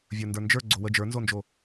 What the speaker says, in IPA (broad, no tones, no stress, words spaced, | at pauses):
vʲə˞ndə˞nd͡ʒə˞ ɡ͡ǀowə d͡ʒə˞nzond͡ʒo